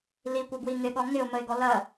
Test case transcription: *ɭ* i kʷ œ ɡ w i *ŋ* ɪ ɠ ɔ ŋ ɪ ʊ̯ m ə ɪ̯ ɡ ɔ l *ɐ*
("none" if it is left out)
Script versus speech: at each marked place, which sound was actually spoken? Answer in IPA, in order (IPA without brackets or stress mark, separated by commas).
l, ŋ, ɐ